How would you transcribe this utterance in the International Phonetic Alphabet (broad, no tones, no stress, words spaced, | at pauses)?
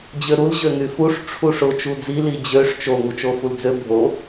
d͡ʑøɾul ʑøŋyfuʂ ʈ͡ʂʰuʂʊ t͡ʃud͡zi lid͡ʑøʂ t͡ʃo ŋut͡ʃofuld͡zø bʱo